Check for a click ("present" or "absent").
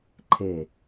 present